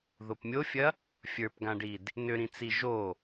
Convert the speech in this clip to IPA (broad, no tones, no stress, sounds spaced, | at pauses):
ð o p mʲ o fʲ ɐ | fʲ ə˞ p ɡ ã ɖ i d | n ʏ ɾ ĩ t͡s i ʒ o